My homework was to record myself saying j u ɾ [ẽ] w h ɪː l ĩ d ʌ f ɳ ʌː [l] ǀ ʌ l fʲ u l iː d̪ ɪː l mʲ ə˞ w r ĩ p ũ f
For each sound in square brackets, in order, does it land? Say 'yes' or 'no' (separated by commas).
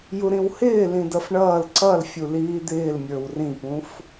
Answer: no, yes